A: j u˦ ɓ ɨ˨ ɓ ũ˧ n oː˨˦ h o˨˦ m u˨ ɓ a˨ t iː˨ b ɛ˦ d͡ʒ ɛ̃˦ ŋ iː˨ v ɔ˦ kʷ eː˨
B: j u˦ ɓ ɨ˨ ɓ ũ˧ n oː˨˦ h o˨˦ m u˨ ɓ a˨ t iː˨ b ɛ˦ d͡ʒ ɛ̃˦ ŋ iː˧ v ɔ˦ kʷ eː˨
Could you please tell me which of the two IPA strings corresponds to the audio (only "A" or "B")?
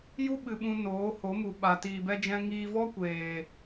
B